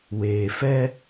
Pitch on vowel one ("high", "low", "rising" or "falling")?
low